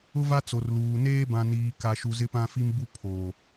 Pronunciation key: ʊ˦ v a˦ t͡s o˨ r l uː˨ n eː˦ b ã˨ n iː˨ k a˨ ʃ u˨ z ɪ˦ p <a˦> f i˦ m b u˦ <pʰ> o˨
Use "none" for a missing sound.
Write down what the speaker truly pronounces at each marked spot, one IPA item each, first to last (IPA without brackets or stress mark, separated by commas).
ã˦, pʰ